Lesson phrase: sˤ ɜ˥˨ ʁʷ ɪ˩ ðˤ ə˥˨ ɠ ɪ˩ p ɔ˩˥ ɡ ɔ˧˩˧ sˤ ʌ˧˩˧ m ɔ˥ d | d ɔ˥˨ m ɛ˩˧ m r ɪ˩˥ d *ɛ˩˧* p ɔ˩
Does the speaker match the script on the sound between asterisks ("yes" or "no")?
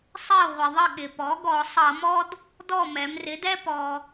no